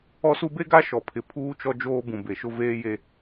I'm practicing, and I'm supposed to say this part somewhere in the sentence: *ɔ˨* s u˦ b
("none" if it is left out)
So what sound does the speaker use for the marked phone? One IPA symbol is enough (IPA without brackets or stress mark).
ɔ˦